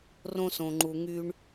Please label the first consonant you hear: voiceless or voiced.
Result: voiced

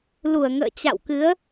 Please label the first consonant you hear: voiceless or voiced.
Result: voiced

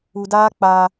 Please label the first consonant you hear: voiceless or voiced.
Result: voiced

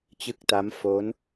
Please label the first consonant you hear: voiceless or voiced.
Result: voiceless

